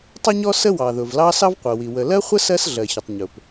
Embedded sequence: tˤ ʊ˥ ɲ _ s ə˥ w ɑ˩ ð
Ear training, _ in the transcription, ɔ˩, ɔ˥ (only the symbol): ɔ˥